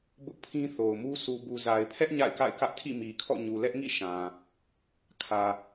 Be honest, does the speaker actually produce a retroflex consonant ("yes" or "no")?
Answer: no